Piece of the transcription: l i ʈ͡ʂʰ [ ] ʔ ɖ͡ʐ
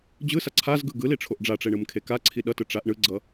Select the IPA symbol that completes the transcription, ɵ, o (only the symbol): o